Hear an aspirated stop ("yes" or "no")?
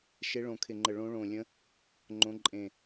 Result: yes